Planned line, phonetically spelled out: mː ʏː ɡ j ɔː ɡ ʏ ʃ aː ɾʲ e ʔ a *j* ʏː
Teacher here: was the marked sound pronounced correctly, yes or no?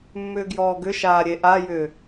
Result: yes